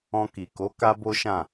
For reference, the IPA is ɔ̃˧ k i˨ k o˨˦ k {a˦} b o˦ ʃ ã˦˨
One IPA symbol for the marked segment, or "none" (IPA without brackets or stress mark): a˦